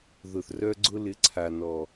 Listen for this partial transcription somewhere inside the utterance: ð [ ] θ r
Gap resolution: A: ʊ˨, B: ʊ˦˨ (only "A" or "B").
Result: A